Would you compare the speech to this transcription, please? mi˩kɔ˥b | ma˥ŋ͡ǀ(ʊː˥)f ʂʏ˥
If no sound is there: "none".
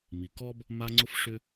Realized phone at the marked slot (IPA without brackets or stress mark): ʊ˥